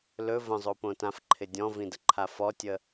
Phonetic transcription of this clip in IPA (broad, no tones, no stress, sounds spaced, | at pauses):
l ɵ v ə̃ zˤ o p õ t ã f ǃʰ ɪ dʲ ɔ̃ v ĩ d ə ǃʰ a f ɔ tʲ ə